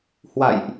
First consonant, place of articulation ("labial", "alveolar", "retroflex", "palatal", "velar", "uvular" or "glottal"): glottal